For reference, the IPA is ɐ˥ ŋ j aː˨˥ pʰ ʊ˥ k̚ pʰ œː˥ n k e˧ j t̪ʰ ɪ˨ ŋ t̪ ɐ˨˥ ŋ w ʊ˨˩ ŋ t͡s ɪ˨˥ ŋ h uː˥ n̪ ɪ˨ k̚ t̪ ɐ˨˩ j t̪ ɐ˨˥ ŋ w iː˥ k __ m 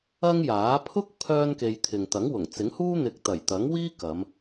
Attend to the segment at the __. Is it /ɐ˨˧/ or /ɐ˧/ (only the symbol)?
ɐ˨˧